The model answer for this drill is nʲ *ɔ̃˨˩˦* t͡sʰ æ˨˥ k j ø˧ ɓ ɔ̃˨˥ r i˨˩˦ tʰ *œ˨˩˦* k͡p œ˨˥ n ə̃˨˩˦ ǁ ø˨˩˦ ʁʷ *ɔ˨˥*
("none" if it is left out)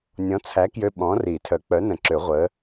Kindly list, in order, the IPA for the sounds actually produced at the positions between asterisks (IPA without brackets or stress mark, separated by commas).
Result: ɔ̃˨˥, œ˨˩˦, ə˨˥